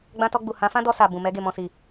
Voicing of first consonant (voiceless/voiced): voiced